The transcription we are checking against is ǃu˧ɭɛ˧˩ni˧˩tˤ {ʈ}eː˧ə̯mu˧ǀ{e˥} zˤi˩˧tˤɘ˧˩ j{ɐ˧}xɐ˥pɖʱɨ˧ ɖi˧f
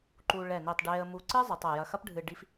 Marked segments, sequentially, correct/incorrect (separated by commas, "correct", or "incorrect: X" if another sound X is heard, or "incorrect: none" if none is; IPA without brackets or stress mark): incorrect: ɖ, incorrect: ɨ˥, correct